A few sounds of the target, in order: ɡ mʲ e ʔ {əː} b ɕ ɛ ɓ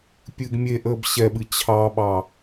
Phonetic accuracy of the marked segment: correct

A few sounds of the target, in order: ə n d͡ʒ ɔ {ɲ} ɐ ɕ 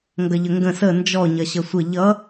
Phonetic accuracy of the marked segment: correct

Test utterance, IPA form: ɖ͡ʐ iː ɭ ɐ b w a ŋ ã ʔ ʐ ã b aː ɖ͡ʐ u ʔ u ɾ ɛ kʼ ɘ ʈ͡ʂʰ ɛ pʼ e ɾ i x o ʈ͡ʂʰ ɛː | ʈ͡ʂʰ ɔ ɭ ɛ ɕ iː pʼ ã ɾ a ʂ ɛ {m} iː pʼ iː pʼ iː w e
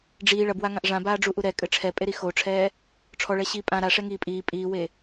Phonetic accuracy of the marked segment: incorrect: ŋ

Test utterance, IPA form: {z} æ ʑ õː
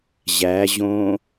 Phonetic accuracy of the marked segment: incorrect: ʑ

